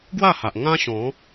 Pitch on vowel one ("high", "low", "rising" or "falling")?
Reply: falling